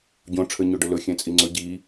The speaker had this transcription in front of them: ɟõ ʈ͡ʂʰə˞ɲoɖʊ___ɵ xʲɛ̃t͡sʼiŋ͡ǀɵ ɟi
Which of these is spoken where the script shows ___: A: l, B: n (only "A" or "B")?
A